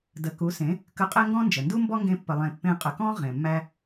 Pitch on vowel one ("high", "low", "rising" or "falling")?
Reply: rising